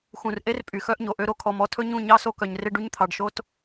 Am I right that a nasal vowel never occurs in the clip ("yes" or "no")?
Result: no